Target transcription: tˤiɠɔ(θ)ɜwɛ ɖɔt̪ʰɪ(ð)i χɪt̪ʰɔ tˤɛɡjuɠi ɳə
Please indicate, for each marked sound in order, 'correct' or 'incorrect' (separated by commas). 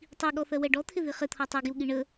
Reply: correct, correct